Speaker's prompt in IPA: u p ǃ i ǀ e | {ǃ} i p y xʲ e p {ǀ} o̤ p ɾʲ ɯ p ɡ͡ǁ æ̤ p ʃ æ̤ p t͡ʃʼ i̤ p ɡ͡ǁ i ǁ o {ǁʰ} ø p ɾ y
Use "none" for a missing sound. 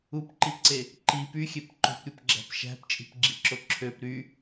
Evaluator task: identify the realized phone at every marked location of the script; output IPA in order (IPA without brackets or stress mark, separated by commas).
ǃ, ǃ, ǁʰ